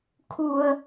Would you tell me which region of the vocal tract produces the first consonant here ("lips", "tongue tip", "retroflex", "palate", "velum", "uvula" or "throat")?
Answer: velum